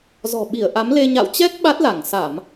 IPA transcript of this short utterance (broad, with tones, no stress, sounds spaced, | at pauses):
z ɔ̤˨˩ ɓ i˧˩ ə̯ ʔ a˨˦ m l e˧ ɲ a̰˧˨ w t͡ɕ ɛ˦˥ k̚ ɓ a˦˥ t̚ l a˧˩ ŋ s a˧˩˨ m